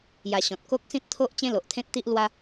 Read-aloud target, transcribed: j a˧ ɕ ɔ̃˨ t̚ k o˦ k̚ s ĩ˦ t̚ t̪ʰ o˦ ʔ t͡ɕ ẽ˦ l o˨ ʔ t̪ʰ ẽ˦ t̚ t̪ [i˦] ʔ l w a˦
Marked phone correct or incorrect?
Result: correct